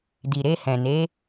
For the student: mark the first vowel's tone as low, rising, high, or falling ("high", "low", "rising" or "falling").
low